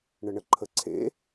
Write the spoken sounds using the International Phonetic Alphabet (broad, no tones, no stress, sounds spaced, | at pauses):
ɳ ə ɳ ə ǃʰ ə ǀʰ ḛ